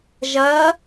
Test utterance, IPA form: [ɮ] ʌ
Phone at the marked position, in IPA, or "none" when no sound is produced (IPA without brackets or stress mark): ʒ